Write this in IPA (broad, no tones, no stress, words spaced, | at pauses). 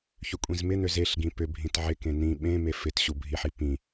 çʏkʷʼĩzmɪn̪øz eɬɡĩ pʏbʱĩt ʕɪkẽ n̪ĩ ɓẽ mefɪt ɕubʱiħi pĩ